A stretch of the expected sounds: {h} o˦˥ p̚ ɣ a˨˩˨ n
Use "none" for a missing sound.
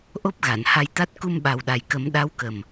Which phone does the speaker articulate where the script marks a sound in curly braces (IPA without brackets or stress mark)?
ʔ